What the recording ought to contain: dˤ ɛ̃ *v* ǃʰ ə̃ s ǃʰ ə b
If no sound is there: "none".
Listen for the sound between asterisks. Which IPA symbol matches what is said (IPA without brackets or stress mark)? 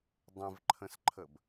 v